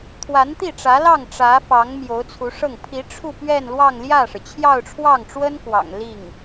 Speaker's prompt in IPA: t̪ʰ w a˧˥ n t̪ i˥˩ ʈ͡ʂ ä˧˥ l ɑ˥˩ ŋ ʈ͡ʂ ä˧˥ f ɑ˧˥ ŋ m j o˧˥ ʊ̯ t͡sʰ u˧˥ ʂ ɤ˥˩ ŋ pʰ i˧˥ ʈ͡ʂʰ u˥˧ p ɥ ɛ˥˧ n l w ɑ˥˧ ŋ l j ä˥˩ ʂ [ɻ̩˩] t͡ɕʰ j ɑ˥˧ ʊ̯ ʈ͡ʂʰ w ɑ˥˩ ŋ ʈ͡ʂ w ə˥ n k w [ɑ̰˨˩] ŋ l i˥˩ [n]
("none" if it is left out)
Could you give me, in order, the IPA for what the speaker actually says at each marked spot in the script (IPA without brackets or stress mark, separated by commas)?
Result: ɻ̩˩, ɑ̰˨˩, ŋ